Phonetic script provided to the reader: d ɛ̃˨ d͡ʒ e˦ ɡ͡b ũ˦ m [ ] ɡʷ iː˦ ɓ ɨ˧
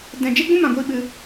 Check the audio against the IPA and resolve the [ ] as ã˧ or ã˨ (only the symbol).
ã˨